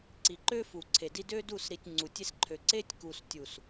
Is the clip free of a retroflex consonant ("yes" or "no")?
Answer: yes